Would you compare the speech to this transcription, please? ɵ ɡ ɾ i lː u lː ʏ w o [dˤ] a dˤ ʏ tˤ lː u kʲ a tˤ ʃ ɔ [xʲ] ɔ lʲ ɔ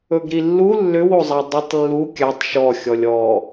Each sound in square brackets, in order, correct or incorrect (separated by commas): incorrect, correct